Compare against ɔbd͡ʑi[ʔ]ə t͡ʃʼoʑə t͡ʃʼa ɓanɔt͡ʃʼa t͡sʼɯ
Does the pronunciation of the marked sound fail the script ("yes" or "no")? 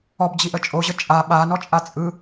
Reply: no